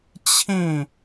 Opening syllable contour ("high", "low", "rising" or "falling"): falling